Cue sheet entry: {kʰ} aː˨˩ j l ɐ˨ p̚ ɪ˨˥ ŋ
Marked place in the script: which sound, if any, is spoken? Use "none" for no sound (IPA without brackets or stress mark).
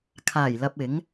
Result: kʰ